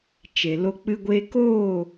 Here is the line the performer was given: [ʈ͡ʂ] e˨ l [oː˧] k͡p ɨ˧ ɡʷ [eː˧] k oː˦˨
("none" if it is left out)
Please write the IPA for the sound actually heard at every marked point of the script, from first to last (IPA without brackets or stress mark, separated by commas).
t͡ʃ, o˧, eː˧